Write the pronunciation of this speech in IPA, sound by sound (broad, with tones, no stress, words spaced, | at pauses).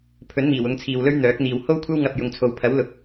pʰɵ˨˥nmiː˨˩w ʊ˨˧ŋt͡sʰiː˨wlɵ˥ɥ n̪œː˨˥k̚n̪iː˨w ho˥wkʷʰɐ˥wŋɐ˨p̚ jʊ˨ŋt͡sʰo˨w pʰɐ˨˥wlʊ˨k̚